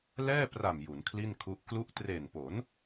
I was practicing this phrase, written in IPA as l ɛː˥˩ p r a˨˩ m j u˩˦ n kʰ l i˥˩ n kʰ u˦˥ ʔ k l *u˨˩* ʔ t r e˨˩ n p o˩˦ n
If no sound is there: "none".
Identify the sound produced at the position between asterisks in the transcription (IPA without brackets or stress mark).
u˥˩